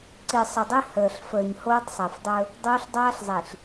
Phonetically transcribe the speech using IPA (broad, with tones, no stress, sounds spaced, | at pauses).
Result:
ǀ i˨ sˤ ə˨ dˤ i˦ h əː˨ ɬ f əː˨ ɲ h oː˦ tˤ sˤ e˨ f dˤ ɵ˦ | dˤ oː˦ ɬ dˤ aː˦ ɬ zˤ i˨ ɬ